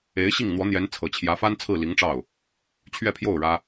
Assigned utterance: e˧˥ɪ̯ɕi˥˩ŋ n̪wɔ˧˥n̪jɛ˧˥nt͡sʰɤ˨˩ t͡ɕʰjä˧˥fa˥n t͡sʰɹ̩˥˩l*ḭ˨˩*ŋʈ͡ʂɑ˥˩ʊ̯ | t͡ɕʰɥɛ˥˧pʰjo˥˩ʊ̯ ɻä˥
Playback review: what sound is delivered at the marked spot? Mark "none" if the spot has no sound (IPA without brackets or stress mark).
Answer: i˧˥